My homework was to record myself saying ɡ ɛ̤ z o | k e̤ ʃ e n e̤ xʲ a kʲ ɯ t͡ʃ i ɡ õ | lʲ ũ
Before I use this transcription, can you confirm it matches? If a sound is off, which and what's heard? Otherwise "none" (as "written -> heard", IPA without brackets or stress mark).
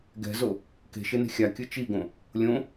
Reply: ũ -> õ